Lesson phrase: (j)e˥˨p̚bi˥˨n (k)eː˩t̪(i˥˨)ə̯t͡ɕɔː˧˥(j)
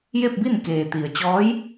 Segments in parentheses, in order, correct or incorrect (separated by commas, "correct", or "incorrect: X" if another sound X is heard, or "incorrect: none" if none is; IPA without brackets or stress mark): correct, correct, incorrect: i˩, correct